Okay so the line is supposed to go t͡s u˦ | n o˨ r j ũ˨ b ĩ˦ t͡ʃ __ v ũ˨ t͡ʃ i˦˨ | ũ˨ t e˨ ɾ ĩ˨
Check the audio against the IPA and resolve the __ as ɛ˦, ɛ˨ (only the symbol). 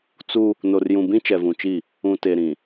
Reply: ɛ˨